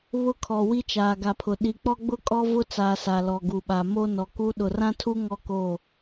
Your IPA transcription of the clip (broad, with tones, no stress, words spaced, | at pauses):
βʊ˦kʰɔ˨ wi˦t͡ʃaː˨ɡa˨pʰʊ˨ ɗi˨k͡pɔ˦ɡ͡bʊ˦ kʼɔ˦vʊ˦t͡saː˨ sa˨lɔ˨ɡu˨ɓa˨ mo˦ nɔ˨ku˦ ɗʊ˨rã˦tʰu˦ ŋɔ˦ ko˦˨